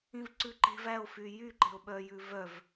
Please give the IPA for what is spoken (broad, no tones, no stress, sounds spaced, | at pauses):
ĩ v ǀ ʉ ǃ e̤ v æ o̯ f y j y ǃ e̤ o̯ ɓ œ j ʉ v œ v